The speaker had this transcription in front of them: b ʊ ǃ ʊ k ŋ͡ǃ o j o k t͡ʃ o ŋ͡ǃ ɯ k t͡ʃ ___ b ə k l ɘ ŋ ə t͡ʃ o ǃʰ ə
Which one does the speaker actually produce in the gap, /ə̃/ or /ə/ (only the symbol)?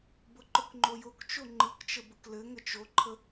ə